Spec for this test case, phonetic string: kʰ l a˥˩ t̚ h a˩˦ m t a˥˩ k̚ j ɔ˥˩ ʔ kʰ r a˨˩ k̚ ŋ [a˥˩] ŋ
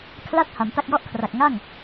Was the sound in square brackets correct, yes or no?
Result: yes